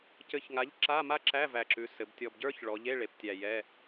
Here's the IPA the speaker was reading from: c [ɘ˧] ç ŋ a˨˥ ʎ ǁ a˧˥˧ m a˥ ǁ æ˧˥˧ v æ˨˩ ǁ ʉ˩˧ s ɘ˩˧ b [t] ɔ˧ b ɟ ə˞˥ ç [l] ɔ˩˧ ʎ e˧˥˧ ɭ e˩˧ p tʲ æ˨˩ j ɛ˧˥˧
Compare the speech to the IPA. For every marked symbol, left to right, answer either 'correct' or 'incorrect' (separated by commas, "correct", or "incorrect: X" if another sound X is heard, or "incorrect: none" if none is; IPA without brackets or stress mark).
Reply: correct, incorrect: tʲ, incorrect: ɭ